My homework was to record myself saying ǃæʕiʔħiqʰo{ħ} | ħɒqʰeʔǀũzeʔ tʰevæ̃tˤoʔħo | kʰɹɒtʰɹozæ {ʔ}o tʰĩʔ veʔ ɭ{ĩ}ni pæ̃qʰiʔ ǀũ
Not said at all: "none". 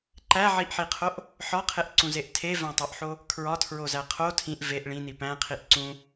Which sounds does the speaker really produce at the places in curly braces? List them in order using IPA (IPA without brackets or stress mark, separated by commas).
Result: ʔ, qʰ, ĩ